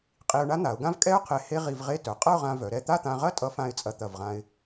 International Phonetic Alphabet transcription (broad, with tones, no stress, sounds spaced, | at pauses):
qʼ i˧ ʊ̯ ɳ a˥ n̪ a˩˧ ʊ̯ ɡ ã˥ v kʼ ɛ˥ ʊ̯ qʰ e˧ h e˥ ʁ i˧ v ʁ e˥˧ t œ˩˧ qʼ ʌ˥˧ ʊ̯ ʁ ã˧ v œ˩˧ ɾ ɛ˥˧ t̪ a˥˧ t̪ ã˧ ʁ ɐ˥ tʼ ʌ˥ f ã˥˧ ɪ̯ t͡sʼ ɐ˧ t̪ ɐ˧˩ v ʁ ã˧ ɪ̯